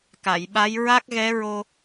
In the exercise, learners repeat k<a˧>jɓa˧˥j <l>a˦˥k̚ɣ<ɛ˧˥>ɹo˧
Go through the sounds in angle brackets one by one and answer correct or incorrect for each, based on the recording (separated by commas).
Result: incorrect, incorrect, correct